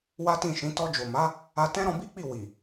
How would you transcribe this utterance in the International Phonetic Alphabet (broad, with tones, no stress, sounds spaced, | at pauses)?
w a˦ t ĩ˦˨ ʃ ĩ˨˦ t ɔ˧ d͡ʒ o˨ m a˨˦ | a˧ t ɛ̃˦ ɾ ɔ̃˧ b i˦ k͡p i˦˨ w i˨